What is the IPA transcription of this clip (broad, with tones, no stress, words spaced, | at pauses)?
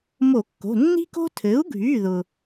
mo˧˩˧kːo̤˩˧˩ nːi̤˦ko̤˦ tʰɘ˩˥u̯ɡʱy˩˧˩ðʊ˩